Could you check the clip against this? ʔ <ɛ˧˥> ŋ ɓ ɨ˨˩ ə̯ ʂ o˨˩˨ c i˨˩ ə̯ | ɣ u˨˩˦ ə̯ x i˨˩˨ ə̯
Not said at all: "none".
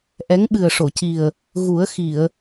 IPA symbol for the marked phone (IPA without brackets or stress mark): ɛ˧˥